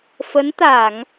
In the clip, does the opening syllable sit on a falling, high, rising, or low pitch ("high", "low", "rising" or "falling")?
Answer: rising